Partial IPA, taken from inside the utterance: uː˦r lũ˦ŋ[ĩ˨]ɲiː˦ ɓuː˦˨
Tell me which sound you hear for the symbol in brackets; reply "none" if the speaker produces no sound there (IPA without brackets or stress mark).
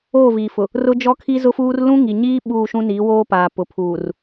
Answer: i˨